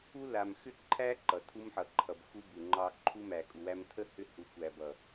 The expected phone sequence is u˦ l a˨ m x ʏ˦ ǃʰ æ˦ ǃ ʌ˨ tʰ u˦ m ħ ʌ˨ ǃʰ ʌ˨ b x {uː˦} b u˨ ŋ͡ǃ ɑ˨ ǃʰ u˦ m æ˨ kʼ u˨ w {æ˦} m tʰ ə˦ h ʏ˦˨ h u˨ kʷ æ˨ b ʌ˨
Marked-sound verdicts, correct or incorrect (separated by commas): incorrect, correct